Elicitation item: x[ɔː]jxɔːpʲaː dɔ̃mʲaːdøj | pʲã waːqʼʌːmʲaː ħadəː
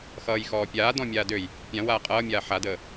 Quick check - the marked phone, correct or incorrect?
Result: incorrect